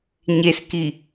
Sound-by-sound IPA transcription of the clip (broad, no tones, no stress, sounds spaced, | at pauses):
ɲ e s k i